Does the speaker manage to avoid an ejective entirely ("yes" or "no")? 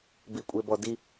no